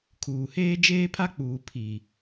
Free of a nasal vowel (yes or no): yes